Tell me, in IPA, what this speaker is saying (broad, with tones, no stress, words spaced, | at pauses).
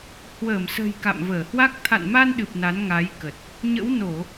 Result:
hwəː˧˩msə̤˨˩j ka̰˧˨mvəː˧˩hwa˦˥k̚ t̪ʰa̰˧˨nma˧nɗɨ˨˩p̚ na˨˦nŋa˨˦jkə˨˩t̚ | ɲə̰˧˥wno˧˩˨